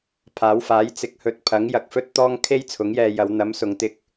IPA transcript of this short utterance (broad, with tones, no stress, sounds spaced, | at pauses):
pʰ aː˨˥ w f aː˨˥ j t͡s ɪ˨˥ k̚ h ɵ˨˥ t̚ pʰ ɐ˨˥ ŋ j ɐ˧ k̚ f ɵ˥ t̚ t̪ ɔː˥ ŋ kʰ e˥ j t͡sʰ ʊ˨˥ ŋ j ɛː˧ j ɐ˨˧ w n̪ ɐ˨˥ m s ʊ˨ ŋ t̪ ɪ˧ k̚